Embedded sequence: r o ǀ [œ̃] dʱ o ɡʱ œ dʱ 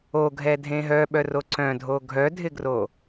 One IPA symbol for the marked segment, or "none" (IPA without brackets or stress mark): œ̃